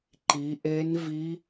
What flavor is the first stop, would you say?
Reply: click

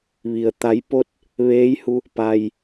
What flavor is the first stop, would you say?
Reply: plain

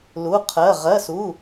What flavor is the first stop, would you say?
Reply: aspirated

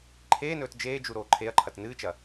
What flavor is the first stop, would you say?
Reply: click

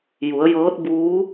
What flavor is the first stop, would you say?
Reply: plain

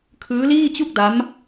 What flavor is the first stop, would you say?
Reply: aspirated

